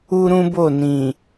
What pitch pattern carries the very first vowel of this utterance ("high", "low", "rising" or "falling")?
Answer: high